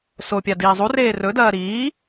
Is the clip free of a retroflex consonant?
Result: yes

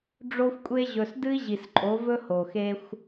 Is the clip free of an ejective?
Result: no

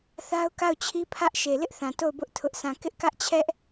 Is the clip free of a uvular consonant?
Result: yes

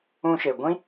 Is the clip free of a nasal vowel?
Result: no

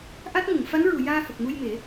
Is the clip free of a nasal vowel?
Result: yes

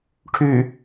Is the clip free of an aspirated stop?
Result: no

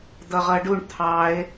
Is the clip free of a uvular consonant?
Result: no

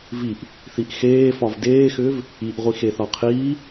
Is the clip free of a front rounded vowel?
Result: no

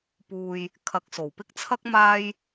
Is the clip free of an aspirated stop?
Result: no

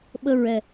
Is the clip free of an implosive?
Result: no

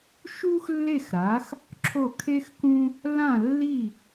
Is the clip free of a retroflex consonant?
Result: yes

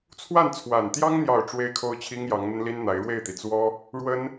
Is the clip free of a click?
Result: yes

